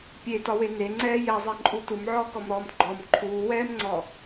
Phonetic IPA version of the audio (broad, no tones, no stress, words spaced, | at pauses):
pʲetɒwe neŋ͡ǀɛː jɛzˤɛǃʼu tumʕɔːkɔmɾɔːm ɡ͡ǃɔm ǃʰuːwɛːmŋ͡ǀɔ